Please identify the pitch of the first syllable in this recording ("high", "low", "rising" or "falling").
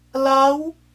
rising